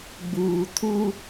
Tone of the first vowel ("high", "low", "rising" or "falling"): low